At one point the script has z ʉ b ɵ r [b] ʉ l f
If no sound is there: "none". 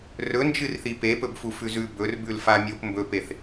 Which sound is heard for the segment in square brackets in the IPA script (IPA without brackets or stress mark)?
b